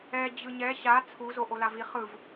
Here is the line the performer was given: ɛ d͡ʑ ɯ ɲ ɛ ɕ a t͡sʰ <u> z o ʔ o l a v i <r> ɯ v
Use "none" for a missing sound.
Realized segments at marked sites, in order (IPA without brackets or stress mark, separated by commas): u, χ